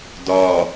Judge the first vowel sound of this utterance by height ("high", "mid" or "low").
low